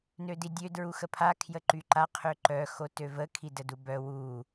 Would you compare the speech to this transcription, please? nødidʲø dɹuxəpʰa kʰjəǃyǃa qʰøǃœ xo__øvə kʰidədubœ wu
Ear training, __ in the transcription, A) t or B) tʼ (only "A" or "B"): A